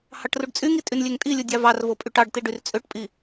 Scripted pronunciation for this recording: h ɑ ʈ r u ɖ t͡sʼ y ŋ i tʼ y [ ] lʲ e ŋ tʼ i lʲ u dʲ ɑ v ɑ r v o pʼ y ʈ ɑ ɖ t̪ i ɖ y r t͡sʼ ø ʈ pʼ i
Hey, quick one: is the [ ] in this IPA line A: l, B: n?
B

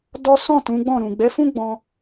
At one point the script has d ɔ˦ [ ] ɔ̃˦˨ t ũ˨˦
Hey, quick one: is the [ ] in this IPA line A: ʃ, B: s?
B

